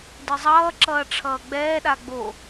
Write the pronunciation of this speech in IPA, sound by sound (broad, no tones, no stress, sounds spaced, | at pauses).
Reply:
d ɯ zˤ ʌː ǁ ʌː ʈ͡ʂʰ ʌː ɡ͡b ɛː ɗ a ɡ͡b o